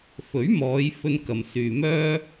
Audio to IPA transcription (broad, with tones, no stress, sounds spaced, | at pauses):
f ɵ˨˥ ɥ m ɔː˨˧ j f ɵ˧ n k ɐ˨ m s yː˨ m œː˥